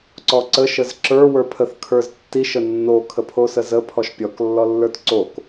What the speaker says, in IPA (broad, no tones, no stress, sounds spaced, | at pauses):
ǀ ɔ ǀ ə ʃ ə z ǁ ə˞ w ə˞ pʰ ə θ kʰ ə˞ z tː i ʃ ə nː o kʰ ə pʰ o s ə z ə pʰ ɔ ʃ pʲ ɔ k lː ɔ lː ə˞ t ǀ o k